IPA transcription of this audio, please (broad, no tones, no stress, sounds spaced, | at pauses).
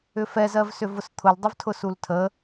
ʏ f ɛ z ɜ v s ʏ v ʊ s t̪ʰ ʊ l dˤ ʊ v tʰ ʊ s u l tʰ ə